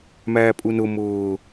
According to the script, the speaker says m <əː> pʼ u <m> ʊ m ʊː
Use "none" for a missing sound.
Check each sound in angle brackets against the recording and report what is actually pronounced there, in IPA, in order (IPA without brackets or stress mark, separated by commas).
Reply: æː, n